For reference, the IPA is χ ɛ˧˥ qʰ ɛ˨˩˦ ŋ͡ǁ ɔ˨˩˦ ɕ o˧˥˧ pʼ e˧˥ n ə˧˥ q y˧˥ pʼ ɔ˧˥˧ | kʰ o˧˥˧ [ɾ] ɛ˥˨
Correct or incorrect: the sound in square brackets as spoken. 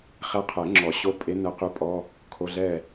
incorrect: ɮ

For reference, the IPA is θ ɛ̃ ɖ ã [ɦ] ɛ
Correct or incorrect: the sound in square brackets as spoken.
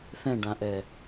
incorrect: ʔ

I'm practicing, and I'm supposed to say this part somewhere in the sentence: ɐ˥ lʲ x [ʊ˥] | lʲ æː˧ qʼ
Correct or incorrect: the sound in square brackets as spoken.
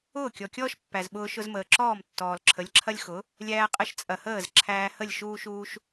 incorrect: ʊ˩˥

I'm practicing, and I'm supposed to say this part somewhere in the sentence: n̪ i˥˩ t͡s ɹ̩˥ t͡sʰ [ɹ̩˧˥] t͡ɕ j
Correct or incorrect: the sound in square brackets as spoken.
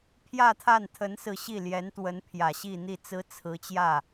correct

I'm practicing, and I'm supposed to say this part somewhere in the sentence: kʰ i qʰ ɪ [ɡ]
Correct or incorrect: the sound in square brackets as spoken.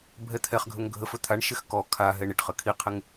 incorrect: ŋ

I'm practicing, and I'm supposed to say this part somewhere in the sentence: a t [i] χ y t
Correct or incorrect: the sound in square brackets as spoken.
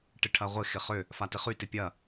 incorrect: ɪ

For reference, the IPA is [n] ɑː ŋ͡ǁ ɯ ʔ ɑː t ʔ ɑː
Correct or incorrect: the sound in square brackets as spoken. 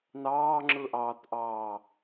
correct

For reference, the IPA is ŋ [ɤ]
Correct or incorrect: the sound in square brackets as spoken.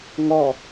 incorrect: ɔ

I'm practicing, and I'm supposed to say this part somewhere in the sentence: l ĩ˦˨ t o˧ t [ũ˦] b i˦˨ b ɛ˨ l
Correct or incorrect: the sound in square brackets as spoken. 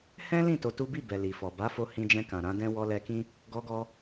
incorrect: u˦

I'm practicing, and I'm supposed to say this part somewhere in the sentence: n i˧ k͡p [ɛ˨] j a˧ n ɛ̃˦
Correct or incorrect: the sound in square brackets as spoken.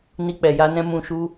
correct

